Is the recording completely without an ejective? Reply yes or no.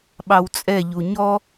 no